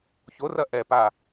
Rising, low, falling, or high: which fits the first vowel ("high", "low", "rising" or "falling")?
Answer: rising